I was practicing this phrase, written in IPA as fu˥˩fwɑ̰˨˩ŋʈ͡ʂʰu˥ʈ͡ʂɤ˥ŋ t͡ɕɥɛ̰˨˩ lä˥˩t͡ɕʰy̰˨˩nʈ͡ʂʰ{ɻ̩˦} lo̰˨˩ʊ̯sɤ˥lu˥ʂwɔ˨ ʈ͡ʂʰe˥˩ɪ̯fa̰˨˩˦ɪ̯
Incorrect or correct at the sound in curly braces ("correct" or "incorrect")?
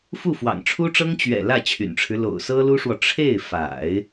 correct